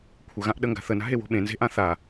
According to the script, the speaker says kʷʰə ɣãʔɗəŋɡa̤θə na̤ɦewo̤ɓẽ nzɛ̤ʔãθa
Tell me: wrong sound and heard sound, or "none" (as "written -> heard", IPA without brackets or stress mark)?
ɛ̤ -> e̤